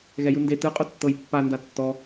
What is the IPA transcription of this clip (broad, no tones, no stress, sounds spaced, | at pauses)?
ɣ ɛ j ɯ n d e t ɯ qʼ o tː ɤ j pː a n d a tː ɔ